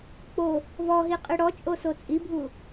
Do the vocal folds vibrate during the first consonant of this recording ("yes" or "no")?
no